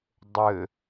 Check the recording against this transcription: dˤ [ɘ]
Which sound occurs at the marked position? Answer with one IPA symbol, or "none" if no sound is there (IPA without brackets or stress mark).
ɘ